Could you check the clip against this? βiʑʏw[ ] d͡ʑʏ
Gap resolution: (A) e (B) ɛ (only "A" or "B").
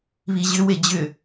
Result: A